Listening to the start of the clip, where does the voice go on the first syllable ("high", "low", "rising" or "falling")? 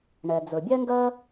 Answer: low